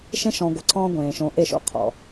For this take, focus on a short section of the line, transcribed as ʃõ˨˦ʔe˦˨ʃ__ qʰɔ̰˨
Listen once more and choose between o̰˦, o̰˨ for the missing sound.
o̰˦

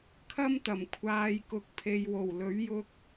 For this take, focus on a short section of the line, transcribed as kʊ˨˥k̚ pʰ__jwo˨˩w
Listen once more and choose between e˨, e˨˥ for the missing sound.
e˨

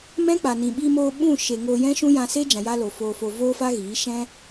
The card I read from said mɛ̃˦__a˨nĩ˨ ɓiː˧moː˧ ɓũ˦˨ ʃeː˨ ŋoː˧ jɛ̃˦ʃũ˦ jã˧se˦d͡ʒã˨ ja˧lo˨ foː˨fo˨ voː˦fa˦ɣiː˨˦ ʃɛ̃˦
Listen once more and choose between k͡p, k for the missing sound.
k͡p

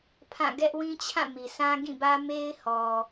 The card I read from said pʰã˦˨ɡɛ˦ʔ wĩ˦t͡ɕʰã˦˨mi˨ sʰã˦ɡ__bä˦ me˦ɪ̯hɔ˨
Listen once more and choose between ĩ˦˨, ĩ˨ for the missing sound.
ĩ˦˨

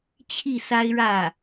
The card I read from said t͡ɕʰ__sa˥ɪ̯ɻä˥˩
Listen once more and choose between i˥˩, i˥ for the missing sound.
i˥˩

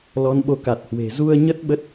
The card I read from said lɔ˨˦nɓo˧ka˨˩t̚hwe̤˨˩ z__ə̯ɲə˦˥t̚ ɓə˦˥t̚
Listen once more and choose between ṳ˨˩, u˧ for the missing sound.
u˧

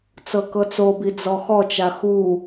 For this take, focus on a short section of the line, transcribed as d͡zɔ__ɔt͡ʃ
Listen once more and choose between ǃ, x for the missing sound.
x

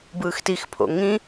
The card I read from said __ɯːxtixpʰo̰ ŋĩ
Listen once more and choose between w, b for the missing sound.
b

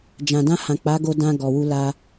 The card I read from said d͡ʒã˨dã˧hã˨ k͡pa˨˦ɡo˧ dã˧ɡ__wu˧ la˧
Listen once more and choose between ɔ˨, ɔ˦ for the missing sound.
ɔ˨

